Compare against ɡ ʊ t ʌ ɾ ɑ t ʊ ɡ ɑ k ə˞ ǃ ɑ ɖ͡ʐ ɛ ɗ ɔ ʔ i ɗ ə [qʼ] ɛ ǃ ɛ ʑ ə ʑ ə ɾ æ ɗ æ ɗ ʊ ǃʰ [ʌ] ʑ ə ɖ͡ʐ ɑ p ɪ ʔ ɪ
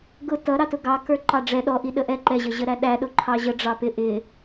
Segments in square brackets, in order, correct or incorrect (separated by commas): incorrect, incorrect